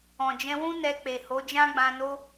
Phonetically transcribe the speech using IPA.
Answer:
ɔ̃˨ d͡ʒ ɛ̃˧ w ũ˦ n ɛ˧ k͡p e˨ h o˨˦ d͡ʒ ã˦ ɡ͡b ã˧ n o˦

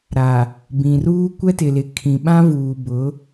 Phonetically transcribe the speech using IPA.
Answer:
ɾ a˨ | b ĩ˨ r uː˦ kʷ ɛ˦ t ɪ˨ l ɪ˨ kʰ ĩ˨ ɓ ã˦ v uː˨ b ʊ˨˦

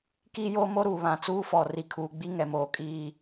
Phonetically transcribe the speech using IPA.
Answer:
k iː˦ j oː˦ m o˦ ɾ uː˨ β ã˨ t͡s uː˦ f ɔ˨ r i˨ kʰ uː˨ ɡ͡b i˦ ŋ ɛ˨ m oː˨ kʼ iː˦˨

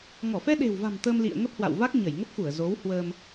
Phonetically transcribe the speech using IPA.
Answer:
ŋ ɔ˧˩ f ɛ˧ ɗ e̤˨˩ w v a̤˨˩ m t̪ ə˧ m l ḭ˧˨ ə̯ ŋ ə˦˥ p̚ h w a̰˧˨ w v a˦˥ k̚ ɲ ə˧˩ j ŋ ə˦˥ p̚ x u˧˩ ə̯ z o˨˦ w h w əː˧ m

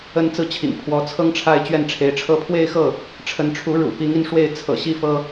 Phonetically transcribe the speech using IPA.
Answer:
ə˥ n t͡s ɹ̩˥ t͡ɕʰ ḭ˨˩ ŋ pʰ w ɔ˧˥ t͡sʰ ɤ˥ ŋ ʈ͡ʂʰ a˥˧ ɪ̯ t͡ɕ ɥ ɛ˥˩ n ʈ͡ʂʰ e˧˥ ɪ̯ ʈ͡ʂʰ ɤ˥˧ pʰ w e˥˧ ɪ̯ x ɤ˥˩ | ʈ͡ʂʰ ə˧˥ n ʈ͡ʂʰ u˧˥ ɻ ṵ˨˩ p i˧˥ ŋ i˧ n ʂ w e˥˩ ɪ̯ t͡sʰ ɤ̰˨˩ ɕ i˥ f ɤ˥

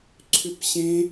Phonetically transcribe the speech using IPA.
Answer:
ǀʰ ʏ p ɕ ẽ

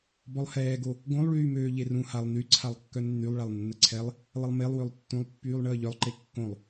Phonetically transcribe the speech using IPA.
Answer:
b ɔ lˠ h ɛː ɡ o | ɡ õ lˠ ɭ yː m øː ʎ e r ũ h a lˠ n y ǀʰ a lˠ kː œ nː y lˠ ɭ a lˠ nː ə ǀʰ ɛ lˠ | lˠ ə lˠ m e lˠ w ø lˠ tː ũ lˠ pː yː lˠ ɳ əː ʎ œ lˠ ǃ e kː õ lˠ

